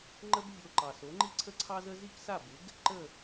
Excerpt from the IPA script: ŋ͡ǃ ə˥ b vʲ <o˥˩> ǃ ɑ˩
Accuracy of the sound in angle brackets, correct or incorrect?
incorrect